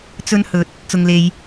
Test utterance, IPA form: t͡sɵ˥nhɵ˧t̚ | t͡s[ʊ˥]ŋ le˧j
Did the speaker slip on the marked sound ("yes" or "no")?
yes